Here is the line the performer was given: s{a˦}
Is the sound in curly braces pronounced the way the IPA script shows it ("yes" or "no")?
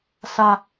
yes